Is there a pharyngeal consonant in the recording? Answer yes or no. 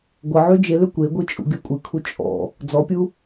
yes